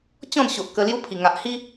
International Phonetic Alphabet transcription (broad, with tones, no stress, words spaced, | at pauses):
t͡ɕɔ̃˥˧nɕo˨ʔ kə˧lju˦pʰi˨˩ ŋa˨ʔhi˦